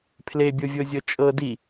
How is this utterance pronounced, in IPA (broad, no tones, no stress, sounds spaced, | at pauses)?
pʰ l e bʲ o vʲ o zʲ ɤ t͡ʃʼ ɤ d i